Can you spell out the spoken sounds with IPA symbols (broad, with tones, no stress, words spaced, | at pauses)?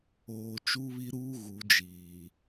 oː˨ t͡ʃu˦βi˦ɾuː˦ ɣu˨˦d͡ʒiː˨